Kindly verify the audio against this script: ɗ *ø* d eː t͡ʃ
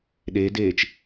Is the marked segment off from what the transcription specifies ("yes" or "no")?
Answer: yes